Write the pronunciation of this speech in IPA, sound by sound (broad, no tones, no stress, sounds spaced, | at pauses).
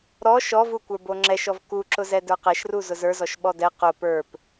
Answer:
ɾ ɔ ʃ ɔ v u kʷ ə˞ b o ŋ͡ǁ ɛ ʃ ɔ v k u ǁ ʊ z ɛ d ə˞ q ɛ ʃ r u z ʊ z ə˞ z ɔ ʃ ɓ ɔ d ɛ q ʊ p ə˞ p